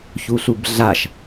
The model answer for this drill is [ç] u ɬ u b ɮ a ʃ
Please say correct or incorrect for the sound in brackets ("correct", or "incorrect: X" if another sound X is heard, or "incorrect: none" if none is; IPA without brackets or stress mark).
correct